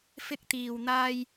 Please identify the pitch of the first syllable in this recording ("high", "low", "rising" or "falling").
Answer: high